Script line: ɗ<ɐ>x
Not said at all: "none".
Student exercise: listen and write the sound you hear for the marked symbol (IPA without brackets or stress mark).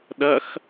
ɐ